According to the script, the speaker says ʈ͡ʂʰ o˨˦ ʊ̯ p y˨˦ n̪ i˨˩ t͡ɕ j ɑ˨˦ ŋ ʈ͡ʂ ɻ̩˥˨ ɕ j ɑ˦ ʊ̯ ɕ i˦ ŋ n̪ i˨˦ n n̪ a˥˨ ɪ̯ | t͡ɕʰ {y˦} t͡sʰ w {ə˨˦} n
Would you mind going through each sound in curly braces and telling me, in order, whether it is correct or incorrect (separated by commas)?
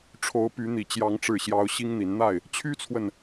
correct, incorrect